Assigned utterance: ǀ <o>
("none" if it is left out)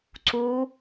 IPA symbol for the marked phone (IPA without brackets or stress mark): u